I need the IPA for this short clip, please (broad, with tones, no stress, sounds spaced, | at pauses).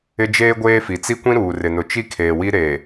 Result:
ɪ˦ d͡ʒ eː˦ ɡʷ eː˦ f i˨ t͡s i˦ kʷ ĩ˦ ɾ uː˨ r ɪ˨ n ʊ˨ t͡ʃ i˦ kʰ eː˨ w i˦ ɾ e˨